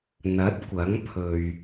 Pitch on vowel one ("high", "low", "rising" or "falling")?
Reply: rising